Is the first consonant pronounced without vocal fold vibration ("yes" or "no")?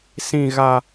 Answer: yes